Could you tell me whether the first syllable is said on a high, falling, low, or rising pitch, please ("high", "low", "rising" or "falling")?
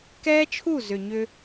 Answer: high